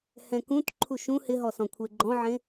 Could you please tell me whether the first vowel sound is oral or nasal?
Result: nasal